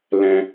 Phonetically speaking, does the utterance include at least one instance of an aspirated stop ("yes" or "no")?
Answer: no